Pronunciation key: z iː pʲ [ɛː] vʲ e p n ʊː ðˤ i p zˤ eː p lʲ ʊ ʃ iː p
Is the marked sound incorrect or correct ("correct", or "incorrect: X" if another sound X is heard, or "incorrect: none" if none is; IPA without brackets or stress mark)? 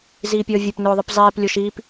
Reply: incorrect: əː